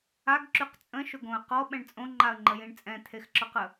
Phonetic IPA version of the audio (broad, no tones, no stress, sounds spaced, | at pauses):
a ɡ ǁ y q t͡sʼ ə̃ ʃ ʊ ɡ õ ə̯ q ɔ ɓ ɛ̃ ɳ t͡sʼ õ ŋ͡ǃ a ə̯ ŋ͡ǃ ə j ĩ ɳ t͡sʼ ɛ̃ t̪ʰ e x ǁ ɔ q ə